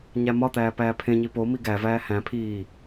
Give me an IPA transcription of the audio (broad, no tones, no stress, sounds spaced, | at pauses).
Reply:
ɲ æ m ɒ t̪ æː p æː pʰ ẽ ɲ i p o m i ɡ æ v æː h æ̃ pʰ iː